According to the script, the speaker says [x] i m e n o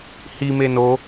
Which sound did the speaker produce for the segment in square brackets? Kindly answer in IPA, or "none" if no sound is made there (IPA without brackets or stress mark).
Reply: h